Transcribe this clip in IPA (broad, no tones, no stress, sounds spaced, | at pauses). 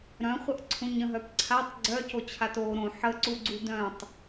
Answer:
ɾ œ̃ χʷ ə ʔ ǀʰ ũ ɲ ə̃ ɦ œ p ǀʰ a tˤ ɡ͡ǀ œ c o t͡ɕʰ a t o ɾ õ ħ ə ǀ u ɡ͡ǀ u d œ̃ tˤ